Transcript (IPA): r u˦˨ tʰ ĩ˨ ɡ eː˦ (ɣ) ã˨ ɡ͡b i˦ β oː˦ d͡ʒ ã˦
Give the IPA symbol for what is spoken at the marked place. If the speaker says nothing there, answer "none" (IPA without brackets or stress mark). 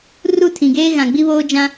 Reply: ɣ